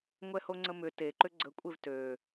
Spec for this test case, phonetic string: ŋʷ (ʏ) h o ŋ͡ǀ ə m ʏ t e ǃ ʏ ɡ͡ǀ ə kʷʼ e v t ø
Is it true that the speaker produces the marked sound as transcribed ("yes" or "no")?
no